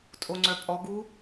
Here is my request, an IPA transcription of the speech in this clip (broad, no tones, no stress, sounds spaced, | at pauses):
tʼ o ŋ͡ǀ œ pʼ ɔ ɡ u